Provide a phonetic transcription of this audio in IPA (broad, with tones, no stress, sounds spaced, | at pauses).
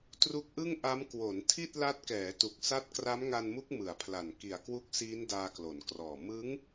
t r u˦˥ k̚ ʔ ɯ˥˩ ŋ ʔ a˦˥ m k w o˩˦ n tʰ i˥˩ t̚ l a˦˥ t̚ k ɛː˩˦ t u˨˩ k̚ s a˦˥ t̚ k r a˦˥ m ŋ a˧ n m u˦˥ k̚ m ɯ˨˩ a̯ pʰ l a˨˩ n k i˨˩ a̯ k w u˦˥ k̚ s iː˦˥ n d aː˧ k l o˩˦ n k r ɔː˨˩ m ɯ˦˥ ŋ